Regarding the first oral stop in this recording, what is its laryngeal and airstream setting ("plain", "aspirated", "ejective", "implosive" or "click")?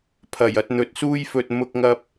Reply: aspirated